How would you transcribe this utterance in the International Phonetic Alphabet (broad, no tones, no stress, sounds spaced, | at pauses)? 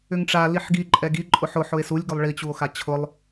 ʏ ŋ ʈ͡ʂ a l i ħ ɡ i ǃʼ ɛ ɡ i ǃʼ ʊ ħ ʊ ħ ʊ e̯ s u lʲ ɡ ʏ lˠ ɭ i t͡ɕ u o̯ x a t͡ɕʰ ʊ lˠ